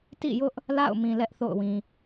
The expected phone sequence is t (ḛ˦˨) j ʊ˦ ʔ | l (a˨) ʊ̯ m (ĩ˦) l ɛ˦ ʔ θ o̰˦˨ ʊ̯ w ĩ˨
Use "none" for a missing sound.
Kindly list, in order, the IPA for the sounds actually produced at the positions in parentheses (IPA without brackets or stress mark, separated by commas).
ḭ˦˨, a̰˦˨, ĩ˨